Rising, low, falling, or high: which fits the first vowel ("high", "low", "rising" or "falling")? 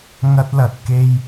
high